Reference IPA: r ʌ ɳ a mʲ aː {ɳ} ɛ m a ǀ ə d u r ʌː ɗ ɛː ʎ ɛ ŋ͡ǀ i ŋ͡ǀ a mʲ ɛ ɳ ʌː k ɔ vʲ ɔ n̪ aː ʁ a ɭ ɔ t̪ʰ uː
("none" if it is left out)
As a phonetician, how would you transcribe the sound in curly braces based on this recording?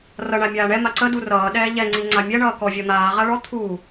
ɳ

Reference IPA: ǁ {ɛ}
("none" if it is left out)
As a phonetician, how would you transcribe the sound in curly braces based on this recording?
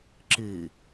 ɨ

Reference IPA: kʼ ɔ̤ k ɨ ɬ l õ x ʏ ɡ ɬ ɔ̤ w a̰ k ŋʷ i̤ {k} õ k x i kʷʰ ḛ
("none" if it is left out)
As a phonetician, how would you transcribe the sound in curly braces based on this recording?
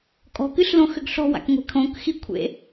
kʰ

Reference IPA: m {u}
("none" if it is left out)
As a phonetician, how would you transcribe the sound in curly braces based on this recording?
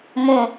ũ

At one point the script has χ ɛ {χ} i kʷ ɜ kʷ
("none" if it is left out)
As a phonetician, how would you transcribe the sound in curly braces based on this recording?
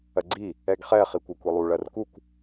χ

